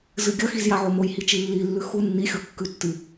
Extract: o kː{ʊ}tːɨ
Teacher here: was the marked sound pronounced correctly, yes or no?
no